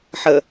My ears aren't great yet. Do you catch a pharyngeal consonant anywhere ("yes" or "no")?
yes